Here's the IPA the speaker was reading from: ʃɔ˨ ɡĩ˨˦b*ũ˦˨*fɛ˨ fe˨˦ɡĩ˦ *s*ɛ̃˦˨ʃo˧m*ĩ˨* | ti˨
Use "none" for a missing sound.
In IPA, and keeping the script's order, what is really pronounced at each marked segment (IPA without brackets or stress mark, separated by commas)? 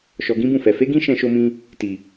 ũ˦˨, ʃ, ĩ˧